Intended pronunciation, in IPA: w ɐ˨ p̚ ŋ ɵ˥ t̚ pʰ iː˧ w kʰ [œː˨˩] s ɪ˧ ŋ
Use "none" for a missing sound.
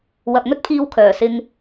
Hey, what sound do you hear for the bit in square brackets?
œː˨˩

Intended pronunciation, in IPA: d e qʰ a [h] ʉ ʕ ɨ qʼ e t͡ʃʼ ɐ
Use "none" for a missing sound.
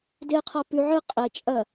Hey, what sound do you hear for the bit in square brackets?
p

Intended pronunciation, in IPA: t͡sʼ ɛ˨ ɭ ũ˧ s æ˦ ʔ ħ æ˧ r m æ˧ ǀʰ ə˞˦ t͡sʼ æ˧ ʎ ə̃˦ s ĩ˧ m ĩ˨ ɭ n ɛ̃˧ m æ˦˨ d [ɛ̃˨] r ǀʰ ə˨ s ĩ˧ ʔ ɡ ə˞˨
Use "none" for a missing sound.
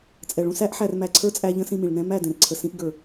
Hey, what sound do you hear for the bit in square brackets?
ɛ̃˨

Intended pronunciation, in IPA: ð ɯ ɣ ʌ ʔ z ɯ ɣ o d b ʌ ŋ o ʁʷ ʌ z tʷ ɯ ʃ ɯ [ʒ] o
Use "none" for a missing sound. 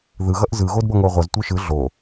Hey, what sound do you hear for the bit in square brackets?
ɮ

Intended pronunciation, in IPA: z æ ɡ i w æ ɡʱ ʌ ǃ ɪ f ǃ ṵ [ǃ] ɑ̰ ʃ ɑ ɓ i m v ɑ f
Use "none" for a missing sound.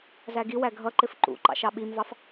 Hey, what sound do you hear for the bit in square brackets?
ǃ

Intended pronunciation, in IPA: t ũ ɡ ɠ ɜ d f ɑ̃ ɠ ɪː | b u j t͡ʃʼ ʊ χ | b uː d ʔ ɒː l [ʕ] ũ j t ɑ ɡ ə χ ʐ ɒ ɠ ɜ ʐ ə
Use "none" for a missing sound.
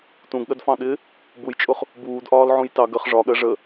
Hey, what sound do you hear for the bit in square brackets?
ʕ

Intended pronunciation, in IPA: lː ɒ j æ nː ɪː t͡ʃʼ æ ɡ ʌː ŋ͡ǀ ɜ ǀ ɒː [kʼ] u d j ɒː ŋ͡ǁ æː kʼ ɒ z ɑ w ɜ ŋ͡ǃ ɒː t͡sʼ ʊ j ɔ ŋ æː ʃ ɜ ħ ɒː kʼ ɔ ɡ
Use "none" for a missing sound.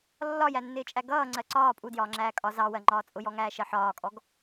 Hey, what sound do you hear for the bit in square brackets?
pʼ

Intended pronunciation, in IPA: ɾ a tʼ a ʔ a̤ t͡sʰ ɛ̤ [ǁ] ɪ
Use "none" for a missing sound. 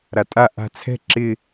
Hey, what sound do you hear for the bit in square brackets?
ǁ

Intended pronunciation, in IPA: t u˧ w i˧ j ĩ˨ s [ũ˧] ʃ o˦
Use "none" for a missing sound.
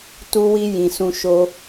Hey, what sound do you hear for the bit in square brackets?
ũ˧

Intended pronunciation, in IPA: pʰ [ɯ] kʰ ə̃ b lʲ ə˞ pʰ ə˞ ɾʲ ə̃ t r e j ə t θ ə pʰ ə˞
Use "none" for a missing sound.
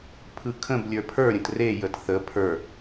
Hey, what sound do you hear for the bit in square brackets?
ɯ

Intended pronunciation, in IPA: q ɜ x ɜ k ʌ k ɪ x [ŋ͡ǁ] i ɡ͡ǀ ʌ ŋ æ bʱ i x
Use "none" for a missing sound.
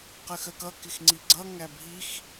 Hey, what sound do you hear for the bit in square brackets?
ŋ͡ǀ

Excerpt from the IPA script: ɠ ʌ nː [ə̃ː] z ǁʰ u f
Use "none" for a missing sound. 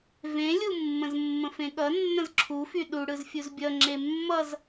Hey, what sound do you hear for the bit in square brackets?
ə̃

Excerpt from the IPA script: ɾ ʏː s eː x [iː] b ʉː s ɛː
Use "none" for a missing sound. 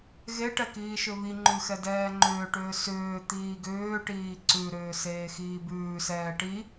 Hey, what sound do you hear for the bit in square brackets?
iː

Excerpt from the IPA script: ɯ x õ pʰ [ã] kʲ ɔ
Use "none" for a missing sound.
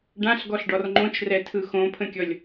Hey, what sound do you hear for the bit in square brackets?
ə̃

